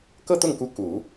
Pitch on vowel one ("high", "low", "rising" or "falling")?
falling